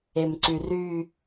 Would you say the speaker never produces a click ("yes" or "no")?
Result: no